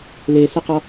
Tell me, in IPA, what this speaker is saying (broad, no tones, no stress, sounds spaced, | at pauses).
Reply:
l e s ə q ɔ